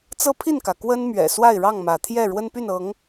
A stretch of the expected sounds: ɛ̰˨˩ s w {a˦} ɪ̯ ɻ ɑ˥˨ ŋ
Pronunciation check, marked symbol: incorrect: a˥˨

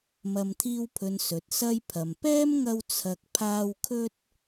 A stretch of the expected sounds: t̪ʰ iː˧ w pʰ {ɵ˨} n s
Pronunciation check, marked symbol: correct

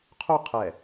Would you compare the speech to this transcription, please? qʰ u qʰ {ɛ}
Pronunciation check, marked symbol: correct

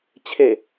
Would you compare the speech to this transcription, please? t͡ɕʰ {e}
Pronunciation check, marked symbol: correct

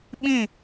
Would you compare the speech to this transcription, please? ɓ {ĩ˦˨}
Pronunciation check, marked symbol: correct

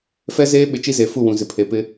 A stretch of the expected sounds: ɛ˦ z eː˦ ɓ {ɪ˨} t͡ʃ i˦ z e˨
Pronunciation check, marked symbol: correct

